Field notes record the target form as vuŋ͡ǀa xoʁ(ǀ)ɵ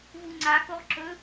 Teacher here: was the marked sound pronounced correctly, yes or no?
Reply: no